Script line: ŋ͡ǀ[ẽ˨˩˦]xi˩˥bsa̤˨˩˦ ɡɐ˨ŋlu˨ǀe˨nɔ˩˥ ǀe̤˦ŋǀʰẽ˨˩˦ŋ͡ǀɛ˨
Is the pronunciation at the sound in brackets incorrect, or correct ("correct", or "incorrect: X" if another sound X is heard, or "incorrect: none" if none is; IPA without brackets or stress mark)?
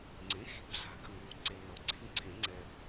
incorrect: ẽ˩˥